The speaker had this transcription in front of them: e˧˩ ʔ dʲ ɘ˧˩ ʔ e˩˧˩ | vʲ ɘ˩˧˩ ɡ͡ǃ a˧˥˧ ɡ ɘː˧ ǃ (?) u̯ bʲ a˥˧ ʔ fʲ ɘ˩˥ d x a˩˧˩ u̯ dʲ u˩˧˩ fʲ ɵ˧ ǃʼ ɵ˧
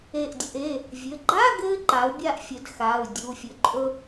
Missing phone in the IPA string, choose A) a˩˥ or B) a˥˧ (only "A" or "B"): A